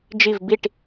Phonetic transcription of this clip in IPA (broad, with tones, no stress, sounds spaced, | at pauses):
d͡ʒ i˦˨ v b i˦˨ ʈ